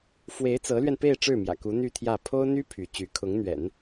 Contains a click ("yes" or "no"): no